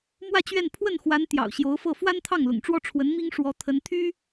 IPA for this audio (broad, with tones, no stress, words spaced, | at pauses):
mwä˥˧t͡ɕɥɛ˥˧n pʰwə˥˩nxwa˧˥n t̪jɑ̰˨˩ʊ̯ɕjo˧˥ʊ̯fɤ˥˩ fwa˥nt̪ʰɑ˥˩ŋlʊ̰˨˩ŋʈ͡ʂwɔ˥˩ ʈ͡ʂʰwə˧˥nmi˥ŋ ʂwɔ˧˥ t̪ʰə˧˥nt̪ʰy˥